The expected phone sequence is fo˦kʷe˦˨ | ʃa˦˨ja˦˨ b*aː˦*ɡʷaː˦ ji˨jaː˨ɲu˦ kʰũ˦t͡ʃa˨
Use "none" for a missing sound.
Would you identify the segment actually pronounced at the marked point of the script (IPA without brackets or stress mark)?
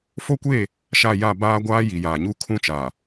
aː˦